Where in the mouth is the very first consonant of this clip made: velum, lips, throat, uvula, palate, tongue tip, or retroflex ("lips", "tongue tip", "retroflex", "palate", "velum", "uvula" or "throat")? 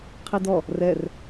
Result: uvula